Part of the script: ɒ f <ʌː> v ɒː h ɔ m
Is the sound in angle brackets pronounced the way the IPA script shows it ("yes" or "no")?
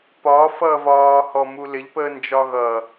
yes